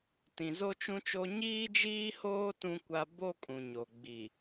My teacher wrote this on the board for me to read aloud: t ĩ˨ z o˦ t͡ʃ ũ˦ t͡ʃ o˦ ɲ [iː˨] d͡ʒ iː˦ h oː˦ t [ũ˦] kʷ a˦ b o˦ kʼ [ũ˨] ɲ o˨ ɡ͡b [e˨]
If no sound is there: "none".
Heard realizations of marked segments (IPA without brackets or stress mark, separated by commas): iː˦, ũ˦, ũ˨, i˨